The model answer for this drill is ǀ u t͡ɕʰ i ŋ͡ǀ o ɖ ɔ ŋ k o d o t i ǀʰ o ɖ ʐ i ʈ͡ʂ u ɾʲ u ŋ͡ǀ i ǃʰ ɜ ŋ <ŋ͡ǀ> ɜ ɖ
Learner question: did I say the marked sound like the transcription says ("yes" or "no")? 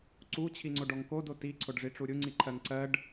no